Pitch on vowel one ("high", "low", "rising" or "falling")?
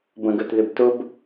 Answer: low